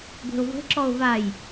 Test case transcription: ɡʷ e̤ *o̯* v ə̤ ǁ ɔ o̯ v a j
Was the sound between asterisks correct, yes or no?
yes